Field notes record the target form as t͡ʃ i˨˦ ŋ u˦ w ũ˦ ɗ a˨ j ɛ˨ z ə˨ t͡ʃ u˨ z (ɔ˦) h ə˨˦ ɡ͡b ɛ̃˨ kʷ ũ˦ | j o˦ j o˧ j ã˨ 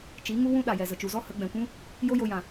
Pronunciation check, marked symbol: correct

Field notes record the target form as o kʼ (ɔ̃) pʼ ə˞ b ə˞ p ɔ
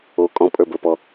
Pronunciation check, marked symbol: correct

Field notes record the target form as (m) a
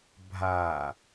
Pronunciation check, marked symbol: incorrect: bʱ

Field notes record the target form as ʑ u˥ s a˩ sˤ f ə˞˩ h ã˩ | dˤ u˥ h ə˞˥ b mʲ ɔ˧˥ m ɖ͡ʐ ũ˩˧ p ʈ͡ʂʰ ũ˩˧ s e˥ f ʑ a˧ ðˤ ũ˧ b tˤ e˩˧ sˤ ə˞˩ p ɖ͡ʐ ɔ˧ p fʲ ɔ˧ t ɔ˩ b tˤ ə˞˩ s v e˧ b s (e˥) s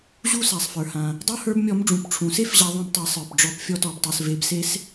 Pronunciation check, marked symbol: correct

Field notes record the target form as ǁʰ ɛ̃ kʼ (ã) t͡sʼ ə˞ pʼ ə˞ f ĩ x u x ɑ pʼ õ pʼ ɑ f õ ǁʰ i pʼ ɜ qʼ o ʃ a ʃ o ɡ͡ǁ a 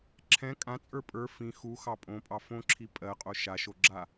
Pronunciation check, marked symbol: correct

